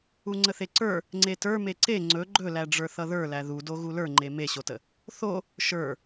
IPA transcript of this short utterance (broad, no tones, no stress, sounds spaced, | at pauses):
u ŋ͡ǀ ə θ e ǀ ə˞ | ŋ͡ǀ e t ə˞ m e ǀ e ŋ͡ǀ ɵ ɡ͡ǃ ɵ l æ ɖ͡ʐ ə˞ θ ʌ ð ə˞ l æ ð u d o ɣ u l ə˞ ŋ͡ǃ e m e ɕ o t ə | θ o | ʃ ə˞